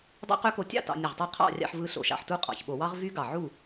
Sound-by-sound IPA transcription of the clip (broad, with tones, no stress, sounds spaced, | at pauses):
dˤ o̰˦˥ q ø˦˥ k o˧ tʲ ɑ̰˥˨ t ɑ̰˧ nʲ ɯ˧˩ ʁ tˤ ø˦˥ qʰ ɑ̰˥˨ rʲ ɑ̰˧ ħ v ɯ˧ ɬ o̰˧˩˧ ʃ ɑ̰˧˩ ħ t u˦˥ qʼ ɑ̰˧˩ ç ɓ o˧˩˧ w ɑ˦˥ ʁ v y˦˥ ɡ ɑ˧˩ ʕ u˥˨